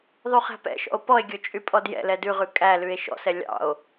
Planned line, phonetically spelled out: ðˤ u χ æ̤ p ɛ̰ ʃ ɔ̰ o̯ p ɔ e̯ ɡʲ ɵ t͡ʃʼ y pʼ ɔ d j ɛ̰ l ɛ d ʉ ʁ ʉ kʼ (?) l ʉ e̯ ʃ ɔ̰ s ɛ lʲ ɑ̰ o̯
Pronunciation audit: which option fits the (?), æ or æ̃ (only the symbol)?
æ